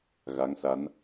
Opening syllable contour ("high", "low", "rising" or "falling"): rising